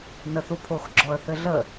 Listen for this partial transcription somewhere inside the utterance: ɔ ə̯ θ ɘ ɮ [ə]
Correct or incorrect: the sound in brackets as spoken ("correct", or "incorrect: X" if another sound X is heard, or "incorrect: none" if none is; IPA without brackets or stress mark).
correct